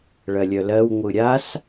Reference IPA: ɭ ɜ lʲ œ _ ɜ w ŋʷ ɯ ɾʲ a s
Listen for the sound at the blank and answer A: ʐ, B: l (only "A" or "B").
B